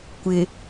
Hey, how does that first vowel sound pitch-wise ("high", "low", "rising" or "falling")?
low